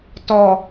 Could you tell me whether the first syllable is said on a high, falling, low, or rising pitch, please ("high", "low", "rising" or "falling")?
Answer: low